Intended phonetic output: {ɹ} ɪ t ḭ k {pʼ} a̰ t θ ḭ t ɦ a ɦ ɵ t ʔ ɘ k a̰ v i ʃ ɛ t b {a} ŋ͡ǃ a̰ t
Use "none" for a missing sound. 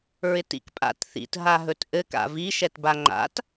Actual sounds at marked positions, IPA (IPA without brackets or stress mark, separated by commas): ɹ, pʼ, a